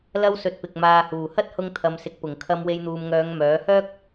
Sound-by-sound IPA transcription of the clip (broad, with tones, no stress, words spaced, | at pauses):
lɐ˥wsɵ˧t̚pɪ˨k̚ maː˨huː˨˩hɐ˥t̚hʊ˧ŋ t̪ʰɐ˨msɪ˨k̚pʊ˨˩ŋ kʰɐ˧mwe˧jn̪uː˨mŋœː˨˧ŋ mœː˨˥ hœː˥k̚